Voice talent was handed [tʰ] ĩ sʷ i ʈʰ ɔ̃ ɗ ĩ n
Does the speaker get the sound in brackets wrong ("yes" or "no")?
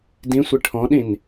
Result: yes